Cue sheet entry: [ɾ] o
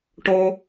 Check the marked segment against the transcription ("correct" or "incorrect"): incorrect